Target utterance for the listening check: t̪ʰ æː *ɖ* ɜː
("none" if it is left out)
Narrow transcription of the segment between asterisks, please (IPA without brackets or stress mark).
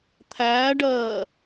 ɖ